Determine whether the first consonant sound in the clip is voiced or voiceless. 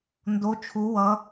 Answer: voiced